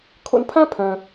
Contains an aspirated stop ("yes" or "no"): yes